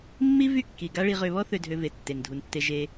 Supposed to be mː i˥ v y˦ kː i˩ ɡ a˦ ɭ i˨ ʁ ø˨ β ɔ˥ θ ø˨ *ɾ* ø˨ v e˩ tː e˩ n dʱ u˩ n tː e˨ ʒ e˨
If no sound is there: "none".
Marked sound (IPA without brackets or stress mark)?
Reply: dʱ